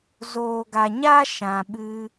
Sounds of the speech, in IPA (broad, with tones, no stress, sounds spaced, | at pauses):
z oː˨ ɡ a˨ ɲ a˦ ʃ ã˨ ɓ ɨ˧